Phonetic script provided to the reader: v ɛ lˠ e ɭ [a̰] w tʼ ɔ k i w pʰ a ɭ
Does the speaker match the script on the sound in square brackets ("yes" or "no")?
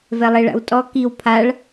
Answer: yes